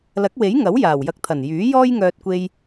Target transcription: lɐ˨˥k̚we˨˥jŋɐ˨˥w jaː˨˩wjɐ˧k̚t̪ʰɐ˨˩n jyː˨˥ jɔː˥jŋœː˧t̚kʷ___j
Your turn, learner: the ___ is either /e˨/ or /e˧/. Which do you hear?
e˧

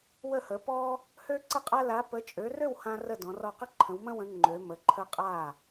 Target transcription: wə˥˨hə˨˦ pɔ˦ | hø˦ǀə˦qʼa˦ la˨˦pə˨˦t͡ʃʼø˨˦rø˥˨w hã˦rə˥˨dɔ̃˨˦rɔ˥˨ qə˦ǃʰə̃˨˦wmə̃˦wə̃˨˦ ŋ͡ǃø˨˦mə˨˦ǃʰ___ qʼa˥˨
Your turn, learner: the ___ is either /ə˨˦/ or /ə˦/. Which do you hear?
ə˦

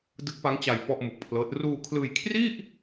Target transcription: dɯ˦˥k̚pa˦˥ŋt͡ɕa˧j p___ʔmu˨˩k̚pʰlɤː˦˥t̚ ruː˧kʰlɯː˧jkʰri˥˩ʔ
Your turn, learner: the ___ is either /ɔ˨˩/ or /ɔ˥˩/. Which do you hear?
ɔ˥˩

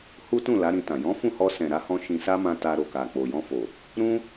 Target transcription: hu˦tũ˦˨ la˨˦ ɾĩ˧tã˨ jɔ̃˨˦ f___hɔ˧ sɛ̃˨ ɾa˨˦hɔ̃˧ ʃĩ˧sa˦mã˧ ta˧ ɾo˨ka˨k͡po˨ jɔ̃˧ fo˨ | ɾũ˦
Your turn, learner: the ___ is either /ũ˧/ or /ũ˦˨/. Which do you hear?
ũ˦˨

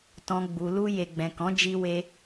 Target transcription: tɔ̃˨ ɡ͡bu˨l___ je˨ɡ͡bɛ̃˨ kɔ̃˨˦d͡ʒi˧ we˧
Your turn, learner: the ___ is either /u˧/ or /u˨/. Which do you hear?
u˧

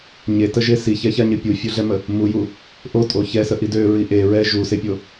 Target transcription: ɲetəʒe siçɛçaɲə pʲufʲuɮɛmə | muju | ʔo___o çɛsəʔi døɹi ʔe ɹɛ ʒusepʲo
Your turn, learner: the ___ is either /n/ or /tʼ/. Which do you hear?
tʼ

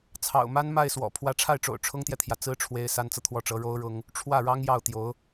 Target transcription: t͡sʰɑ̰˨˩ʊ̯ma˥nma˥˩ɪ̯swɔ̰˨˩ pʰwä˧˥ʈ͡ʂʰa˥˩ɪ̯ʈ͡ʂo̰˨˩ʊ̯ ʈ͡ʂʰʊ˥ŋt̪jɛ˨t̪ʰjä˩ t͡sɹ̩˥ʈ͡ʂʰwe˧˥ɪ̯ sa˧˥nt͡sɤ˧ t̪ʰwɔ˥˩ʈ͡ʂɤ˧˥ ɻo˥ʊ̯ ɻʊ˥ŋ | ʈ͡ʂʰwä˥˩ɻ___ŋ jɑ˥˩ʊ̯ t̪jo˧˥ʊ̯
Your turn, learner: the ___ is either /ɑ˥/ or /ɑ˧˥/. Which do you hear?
ɑ˥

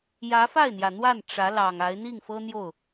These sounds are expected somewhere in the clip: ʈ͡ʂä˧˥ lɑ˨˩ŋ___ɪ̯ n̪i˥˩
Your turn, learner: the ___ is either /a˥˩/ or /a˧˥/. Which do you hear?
a˧˥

